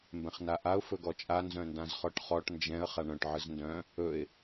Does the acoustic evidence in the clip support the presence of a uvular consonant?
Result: yes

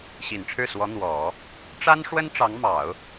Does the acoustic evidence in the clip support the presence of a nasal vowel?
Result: no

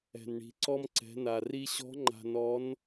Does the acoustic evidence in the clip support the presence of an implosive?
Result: no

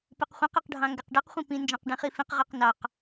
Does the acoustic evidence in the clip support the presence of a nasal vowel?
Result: yes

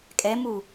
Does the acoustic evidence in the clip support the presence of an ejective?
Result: yes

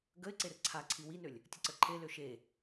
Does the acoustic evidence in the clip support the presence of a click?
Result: yes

